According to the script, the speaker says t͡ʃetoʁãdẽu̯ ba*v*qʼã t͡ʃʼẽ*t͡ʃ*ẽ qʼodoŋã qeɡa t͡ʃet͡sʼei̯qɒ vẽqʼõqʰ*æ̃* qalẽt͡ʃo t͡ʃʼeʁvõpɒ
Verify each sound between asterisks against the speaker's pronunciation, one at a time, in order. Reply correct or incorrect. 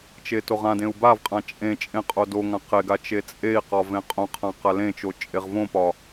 correct, incorrect, incorrect

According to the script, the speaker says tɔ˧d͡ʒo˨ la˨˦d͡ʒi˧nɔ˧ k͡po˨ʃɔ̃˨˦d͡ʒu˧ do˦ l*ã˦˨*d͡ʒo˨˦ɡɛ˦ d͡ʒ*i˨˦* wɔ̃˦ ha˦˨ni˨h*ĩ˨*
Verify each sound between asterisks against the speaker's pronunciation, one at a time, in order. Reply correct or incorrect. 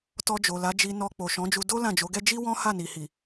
correct, incorrect, incorrect

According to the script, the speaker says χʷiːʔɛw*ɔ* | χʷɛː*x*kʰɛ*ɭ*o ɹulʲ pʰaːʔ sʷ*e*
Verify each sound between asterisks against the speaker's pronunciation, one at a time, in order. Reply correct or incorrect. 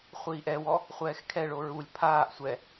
correct, correct, correct, incorrect

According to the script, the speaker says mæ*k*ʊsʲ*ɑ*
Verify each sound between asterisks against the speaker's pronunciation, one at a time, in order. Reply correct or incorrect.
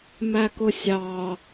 correct, correct

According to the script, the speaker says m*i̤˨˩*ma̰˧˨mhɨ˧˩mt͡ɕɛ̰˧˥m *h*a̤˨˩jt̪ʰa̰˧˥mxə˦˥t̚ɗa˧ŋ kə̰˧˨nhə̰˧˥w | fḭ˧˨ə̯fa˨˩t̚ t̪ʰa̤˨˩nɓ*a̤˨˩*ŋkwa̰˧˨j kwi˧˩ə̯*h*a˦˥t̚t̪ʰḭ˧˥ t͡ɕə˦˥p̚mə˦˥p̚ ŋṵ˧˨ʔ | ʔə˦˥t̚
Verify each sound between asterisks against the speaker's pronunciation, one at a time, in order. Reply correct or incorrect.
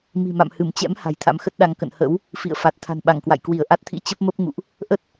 correct, correct, incorrect, incorrect

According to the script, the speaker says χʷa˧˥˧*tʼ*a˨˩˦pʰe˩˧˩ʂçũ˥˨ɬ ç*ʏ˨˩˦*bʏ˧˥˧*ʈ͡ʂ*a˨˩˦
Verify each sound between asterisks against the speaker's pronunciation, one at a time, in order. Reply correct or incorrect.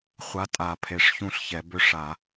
correct, incorrect, incorrect

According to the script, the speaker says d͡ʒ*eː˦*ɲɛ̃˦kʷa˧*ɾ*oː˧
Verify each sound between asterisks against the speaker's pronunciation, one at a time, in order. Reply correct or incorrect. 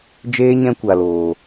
correct, incorrect

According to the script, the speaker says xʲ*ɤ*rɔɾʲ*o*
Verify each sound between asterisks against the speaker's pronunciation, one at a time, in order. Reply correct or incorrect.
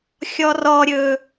incorrect, incorrect

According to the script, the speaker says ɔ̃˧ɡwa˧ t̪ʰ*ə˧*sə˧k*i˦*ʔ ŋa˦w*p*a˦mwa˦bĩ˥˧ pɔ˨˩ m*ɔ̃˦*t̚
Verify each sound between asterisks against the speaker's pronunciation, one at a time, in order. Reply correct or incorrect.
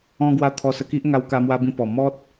incorrect, correct, incorrect, incorrect

